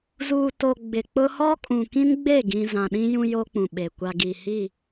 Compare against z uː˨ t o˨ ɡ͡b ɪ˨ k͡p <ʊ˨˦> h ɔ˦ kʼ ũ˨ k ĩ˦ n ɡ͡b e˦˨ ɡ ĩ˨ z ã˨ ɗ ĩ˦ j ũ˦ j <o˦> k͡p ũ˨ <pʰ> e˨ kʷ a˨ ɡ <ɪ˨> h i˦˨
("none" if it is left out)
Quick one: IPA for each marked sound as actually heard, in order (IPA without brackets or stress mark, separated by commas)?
ʊ˦, o˦, ɓ, i˨